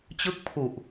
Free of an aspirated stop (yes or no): no